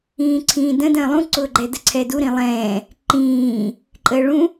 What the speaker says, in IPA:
ĩː ǀʰ ĩː d ə̃ d ə̃ː lˠ ũ ǀ ʊː ɡ͡ǃ ɛ d ə ǀʰ ɛ d u ɾ ĩ lˠ ɛ̃ː | ǃ ĩː | ǃʼ əː ɭ ũ

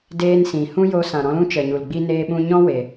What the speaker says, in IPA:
d eː˦ n s ĩ˨ h ũ˦ j o˧ s ã˨ ɾ ɔ̃˧ l ũ˦ t͡ʃ ə˨ ɲ u˨ l ɡ͡b i˦ n eː˧ ɓ ũ˧ ɲ ɔ̃˦ w e˨

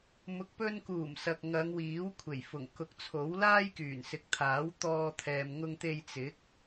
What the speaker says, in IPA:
m ʊ˨ k̚ p ɵ˧ n k uː˨˩ m s ɐ˨ k̚ ŋ ɐ˨˧ ŋ w iː˨˥ w kʷʰ e˨˩ j f ʊ˨˩ ŋ k ʊ˨˥ k̚ t͡sʰ o˨˥ w l aː˥ j k yː˨˩ n s ɪ˨˥ k̚ t̪ʰ aː˨˥ w t̪ ɔː˧ t̪ʰ ɛː˨ m ŋ ʊ˧ ŋ t̪ e˧ j t͡s ɪ˨˥ k̚

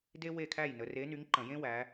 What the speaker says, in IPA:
d e˥ w e˥˨ kʰ æ˥˨ j n ə˨˦ r e˨˦ n y˨˦ ŋ ǃ ə̃˧˩˧ j ẽ˥ w æ˨˦

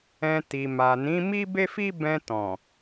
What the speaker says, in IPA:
ɛ̃˧ t i˨ m a˨ n ĩ˨˦ m i˦ b e˦ f i˦ b ɛ̃˧ t ɔ̃˨

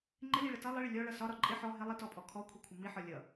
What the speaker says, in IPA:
ŋ͡ǃ ɪ l i ɭ ə t ʌ lˠ ɪ ɭ ɪ lʲ ɔ ɭ ʌ s ɒ ɾ ɒ ǃʼ ɪ ħ ɔ ɦ ɪ lˠ i t ɔ pʼ ɔ kʰ ɔ kʷʰ i kʷʰ ə m i ħ ɒ lʲ ʌ

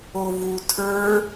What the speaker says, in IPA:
o v u tʰ ə˞

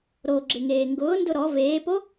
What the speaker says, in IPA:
ɾ o ɡ͡ǁ ɪ ŋ eː ŋ ɡ ʊː n d ʊ ɾ ɔ v eː p o

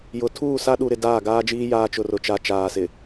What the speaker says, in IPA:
j ʊ˨ tʰ uː˦˨ s a˦ ɗ u˨ ɾ ɪ˨ d aː˦˨ ɡ aː˦ d͡ʒ iː˦ j aː˦ t͡ʃ ʊ˨ r ʊ˨ t͡ʃ a˨ t͡ʃ aː˨ s ɪ˨

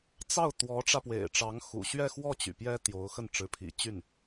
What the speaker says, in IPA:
t͡s ɑ˥˩ ʊ̯ t̪ w ɔ˧˥ ʈ͡ʂ ä˧ p w ḛ˨˩ ɪ̯ ʈ͡ʂ ɑ˧˥ ŋ x ṵ˨˩ ɕ ɥ ɛ˥˧ x w ɔ˥˩ t͡ɕ y̰˨˩ p j ɛ˥ t̪ j o˧˥ ʊ̯ x ə˥˩ n ʈ͡ʂ ɻ̩˧˥ pʰ ḭ˨˩ t͡ɕ y˥˩ n

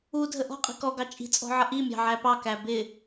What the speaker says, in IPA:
u dʱ ə ʔ ɔ̤ qʼ i̤ k ɔ ɡ ɑ t͡ʃʼ i̤ t͡sʼ ɔ̤ ʕ ʌ ʔ i mʲ ɑ̤ ʕ æ p ɑ k æ b ɪ

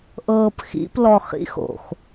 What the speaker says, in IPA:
ʔ ɤː p x ḭ p l ɔ χ ḭ x o̰ x

